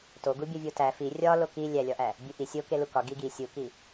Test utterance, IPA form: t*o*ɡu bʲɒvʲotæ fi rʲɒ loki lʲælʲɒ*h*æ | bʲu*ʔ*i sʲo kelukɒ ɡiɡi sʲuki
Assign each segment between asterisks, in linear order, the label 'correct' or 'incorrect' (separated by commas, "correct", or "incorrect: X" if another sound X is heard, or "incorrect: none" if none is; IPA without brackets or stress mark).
correct, incorrect: ʔ, correct